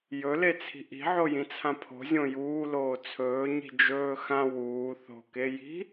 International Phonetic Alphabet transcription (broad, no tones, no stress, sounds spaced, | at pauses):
j ɵ l e t͡sʰ i̤ ʔ i̤ ʕ o j ĩ t͡sʰ ã pʰ o̤ zʲ õ j uː l oː t͡sʰ ɵː ɲ i̤ d͡ʒ ɵː x ã w uː θ o̤ k e j i̤